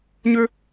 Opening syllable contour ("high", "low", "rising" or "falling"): high